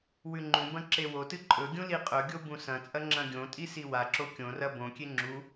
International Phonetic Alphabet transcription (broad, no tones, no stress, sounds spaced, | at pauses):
w ʉ ŋ͡ǃ ũ b ɐ̃ ǁ e w o t ɨ ǃʼ ɵ ɡʲ ũ l i qʼ ɵ ɡʲ o b ũ s ɐ̃ t͡sʼ ɐ ŋ͡ǁ ɐ̃ ɡʲ õ tʼ i s i w a ǁ o kʲ õ r ɐ b õ kʲ e ŋ͡ǁ u